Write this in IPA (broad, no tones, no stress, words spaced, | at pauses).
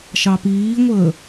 ʃɑpiːŋʷəː